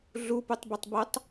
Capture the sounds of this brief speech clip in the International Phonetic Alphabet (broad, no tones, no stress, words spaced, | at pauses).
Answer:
ɮuputˤbotˤbotˤ